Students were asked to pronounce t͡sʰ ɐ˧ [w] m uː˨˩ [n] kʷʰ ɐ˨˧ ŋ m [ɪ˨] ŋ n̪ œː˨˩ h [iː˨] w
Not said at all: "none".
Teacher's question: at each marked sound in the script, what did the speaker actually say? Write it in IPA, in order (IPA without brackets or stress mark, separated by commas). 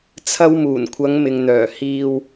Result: w, n, ɪ˨, iː˨